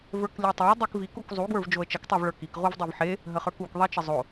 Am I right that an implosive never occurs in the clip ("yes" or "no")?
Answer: yes